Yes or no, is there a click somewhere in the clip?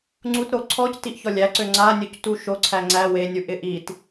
yes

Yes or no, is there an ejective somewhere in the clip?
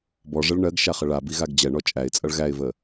yes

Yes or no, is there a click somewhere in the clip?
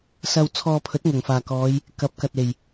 no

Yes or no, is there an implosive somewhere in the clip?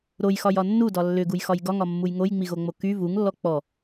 no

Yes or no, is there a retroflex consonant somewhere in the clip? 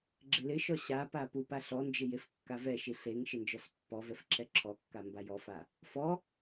no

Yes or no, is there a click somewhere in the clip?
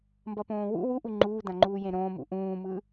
yes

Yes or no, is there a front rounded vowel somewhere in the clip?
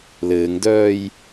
yes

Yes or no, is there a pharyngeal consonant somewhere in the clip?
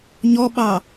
no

